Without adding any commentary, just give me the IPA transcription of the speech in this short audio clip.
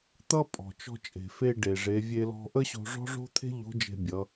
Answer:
t̪ ʌ˥ pʼ ɔ̤˩ t͡ʃ ɔ̤˧ t͡ʃʼ e̤˩ f e˧ ɖ e˩ ʐ e˩˧ vʲ e˧ l ɔ̤˧ ʔ ə˥ ɕ o̤˧ ʐ ɔ̤˥ ʐ o̤˥ t̪ʰ e̤˥ ʎ o̤˧˥ d͡ʒ e̤˧ bʲ ʌ˩˧

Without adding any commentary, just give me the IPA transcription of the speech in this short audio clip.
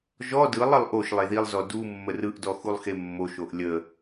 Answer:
ʒ ɔ d ɯ lˠ ə lˠ ʔ o ʃ lˠ e ð i lˠ z ɔ d u mː ə r ɯ ʔ d ɔ x u lˠ x e mː o ʃ o ʔ lʲ ə

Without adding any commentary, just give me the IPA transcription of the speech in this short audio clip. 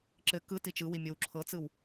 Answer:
ǁ ɘ k ɯ t i t͡ʃ ɯ w i mʲ o w ǁʰ ɤ t͡s ɯ w

